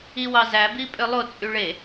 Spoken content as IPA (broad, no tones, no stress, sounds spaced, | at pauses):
i w ɑ z æ b i pʼ ø lˠ o t͡sʼ y ɭ e